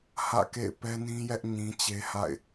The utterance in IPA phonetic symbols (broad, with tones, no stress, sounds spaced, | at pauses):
h ä̰˦˨ k ḛ˦˨ ɪ̯ p ɛ˦ n ĩ˦ j ɛ˦ ʔ ɲ ĩ˦ t͡ɕ e˦ h a̰˦˨ ɪ̯